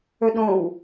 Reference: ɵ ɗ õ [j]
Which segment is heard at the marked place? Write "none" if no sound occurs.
w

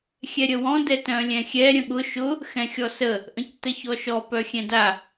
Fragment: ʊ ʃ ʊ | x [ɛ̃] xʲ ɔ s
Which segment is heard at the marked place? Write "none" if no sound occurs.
ɛ̃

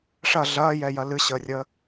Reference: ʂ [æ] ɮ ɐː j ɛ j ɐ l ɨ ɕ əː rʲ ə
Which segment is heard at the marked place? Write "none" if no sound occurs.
ɐ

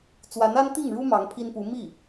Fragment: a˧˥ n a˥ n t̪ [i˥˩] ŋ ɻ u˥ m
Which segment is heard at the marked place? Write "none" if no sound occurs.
i˥˩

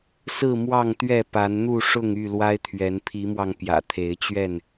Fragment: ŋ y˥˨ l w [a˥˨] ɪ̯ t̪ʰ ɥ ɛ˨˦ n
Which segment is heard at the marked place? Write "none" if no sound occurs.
a˦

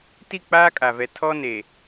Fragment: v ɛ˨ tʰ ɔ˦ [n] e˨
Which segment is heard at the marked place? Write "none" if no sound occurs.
n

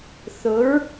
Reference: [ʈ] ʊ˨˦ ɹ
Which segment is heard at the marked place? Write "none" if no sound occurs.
θ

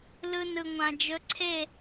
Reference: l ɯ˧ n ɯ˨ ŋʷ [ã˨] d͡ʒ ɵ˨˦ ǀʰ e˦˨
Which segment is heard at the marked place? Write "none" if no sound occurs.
ã˨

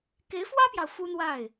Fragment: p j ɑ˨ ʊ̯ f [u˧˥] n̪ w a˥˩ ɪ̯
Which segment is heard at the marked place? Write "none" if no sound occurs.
u˥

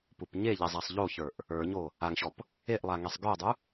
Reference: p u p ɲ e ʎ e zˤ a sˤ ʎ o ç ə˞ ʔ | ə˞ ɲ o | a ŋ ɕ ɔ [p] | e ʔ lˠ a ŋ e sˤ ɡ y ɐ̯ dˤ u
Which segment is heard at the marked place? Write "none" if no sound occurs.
p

